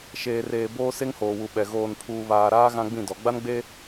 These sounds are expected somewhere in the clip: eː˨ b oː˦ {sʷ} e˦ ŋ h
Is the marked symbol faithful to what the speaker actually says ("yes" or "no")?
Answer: no